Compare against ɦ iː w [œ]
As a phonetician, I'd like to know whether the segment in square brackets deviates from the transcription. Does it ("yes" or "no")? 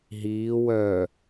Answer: no